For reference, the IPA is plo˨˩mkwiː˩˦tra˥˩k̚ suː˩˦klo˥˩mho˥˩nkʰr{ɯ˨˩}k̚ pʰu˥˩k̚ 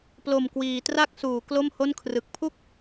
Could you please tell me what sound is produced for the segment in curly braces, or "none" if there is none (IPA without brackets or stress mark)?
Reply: ɯ˨˩